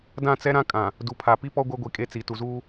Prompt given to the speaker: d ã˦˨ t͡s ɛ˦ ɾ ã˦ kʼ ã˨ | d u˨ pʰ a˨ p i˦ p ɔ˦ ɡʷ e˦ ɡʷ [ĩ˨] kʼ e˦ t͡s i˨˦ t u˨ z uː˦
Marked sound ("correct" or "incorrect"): incorrect